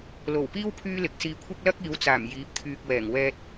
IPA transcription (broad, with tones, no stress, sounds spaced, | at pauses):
l o˨˩ w p iː˥ w pʰ yː˥ l ɪ˨ k̚ s iː˧ kʷʰ ɐ˥ k̚ l ɐ˥ k̚ iː˨˧ w t͡s aː˨˩ m j iː˨˥ p̚ t̪ʰ yː˨ k̚ w ɛː˨˩ ŋ w ɛː˧ t̚